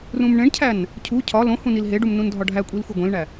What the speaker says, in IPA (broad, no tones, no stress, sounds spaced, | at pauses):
r ũ m ɳ ẽ ɳ cʰ æ n | cʰ u cʰ ɒ l õ h ũ n i l ɦ e ɖ u m n ũ n dʱ ɒ ɖʱ æ kʷʼ i l xʷ e ɡʷ ẽ l ɳ æ